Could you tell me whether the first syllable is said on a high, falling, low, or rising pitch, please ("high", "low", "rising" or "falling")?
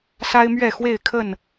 high